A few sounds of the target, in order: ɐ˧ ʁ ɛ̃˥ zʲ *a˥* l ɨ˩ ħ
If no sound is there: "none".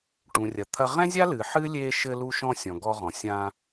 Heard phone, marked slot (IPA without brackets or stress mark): a˥